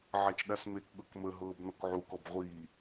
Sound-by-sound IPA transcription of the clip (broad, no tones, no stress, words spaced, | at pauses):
ʕat͡ʃɗasmekɠɤk məɦɤːb nɔkʕukɔb ʁʷiː